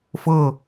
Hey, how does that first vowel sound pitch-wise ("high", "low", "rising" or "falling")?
falling